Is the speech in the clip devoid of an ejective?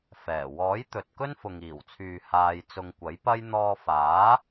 yes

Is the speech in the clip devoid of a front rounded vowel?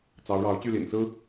no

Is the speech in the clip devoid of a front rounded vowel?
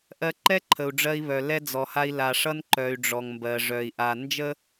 no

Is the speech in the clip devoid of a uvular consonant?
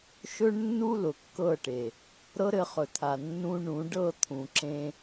no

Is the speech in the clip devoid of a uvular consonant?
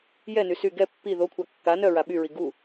yes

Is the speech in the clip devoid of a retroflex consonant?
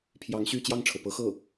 no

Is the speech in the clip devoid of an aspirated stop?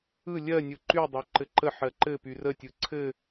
no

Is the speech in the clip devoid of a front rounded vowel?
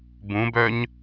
no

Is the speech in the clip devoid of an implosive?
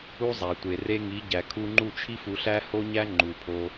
yes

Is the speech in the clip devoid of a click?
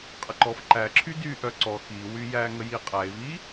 no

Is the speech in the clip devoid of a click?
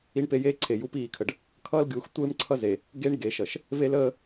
no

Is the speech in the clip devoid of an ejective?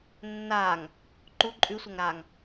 no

